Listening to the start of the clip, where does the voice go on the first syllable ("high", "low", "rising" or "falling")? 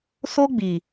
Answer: high